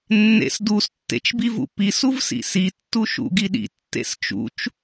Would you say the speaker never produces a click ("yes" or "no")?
yes